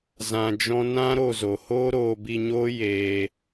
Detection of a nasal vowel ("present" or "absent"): present